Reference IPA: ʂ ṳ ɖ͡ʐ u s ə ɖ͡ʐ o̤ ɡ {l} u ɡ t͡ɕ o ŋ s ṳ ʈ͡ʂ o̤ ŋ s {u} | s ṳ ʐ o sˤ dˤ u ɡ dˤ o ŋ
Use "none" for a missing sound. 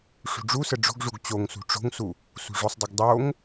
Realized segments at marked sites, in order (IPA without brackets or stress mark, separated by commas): ʐ, u